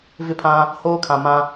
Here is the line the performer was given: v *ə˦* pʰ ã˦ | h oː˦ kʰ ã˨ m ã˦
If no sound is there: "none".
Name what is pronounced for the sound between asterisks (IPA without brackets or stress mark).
ɪ˦